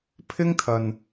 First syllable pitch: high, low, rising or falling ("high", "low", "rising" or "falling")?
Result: high